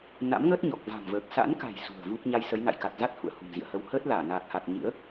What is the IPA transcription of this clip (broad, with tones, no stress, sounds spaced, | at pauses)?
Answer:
n a̰˧˥ m ŋ əː˦˥ t̚ ɲ ɔ˨˩ k̚ v a̤˨˩ m v əː˨˩ k̚ s a̰˧˥ n k a̤˨˩ j s ṳ˨˩ ə̯ v u˦˥ k̚ ɲ a˧ j s ə˨˦ j n a̰˧˨ j k a˨˩ t̚ z a˦˥ t̚ h ṵ˧˨ ə̯ h ṳ˨˩ m z ḭ˧˨ ə̯ h ə˧ w h əː˦˥ t̚ l aː˧˩ n aː˨˩ k̚ h a˨˩ t̚ ɲ ɨ̰˧˥ ə̯